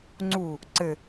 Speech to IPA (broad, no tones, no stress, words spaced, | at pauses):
ŋ͡ǀu | ǀɘ